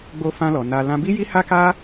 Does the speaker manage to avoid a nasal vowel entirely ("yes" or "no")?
no